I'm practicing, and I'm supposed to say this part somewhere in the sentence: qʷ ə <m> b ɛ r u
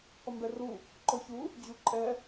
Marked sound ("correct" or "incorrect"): correct